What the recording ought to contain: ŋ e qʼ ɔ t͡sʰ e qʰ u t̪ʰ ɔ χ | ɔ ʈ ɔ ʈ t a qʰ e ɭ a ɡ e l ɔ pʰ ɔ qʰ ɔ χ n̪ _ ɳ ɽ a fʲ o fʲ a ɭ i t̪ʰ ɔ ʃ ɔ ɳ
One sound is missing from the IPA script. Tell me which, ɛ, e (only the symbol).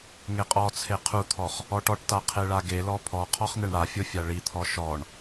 e